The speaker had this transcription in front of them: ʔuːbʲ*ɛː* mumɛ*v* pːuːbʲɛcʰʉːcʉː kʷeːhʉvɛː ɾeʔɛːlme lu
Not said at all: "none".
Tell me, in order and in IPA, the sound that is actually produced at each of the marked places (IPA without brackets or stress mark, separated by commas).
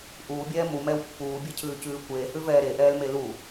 ɛː, w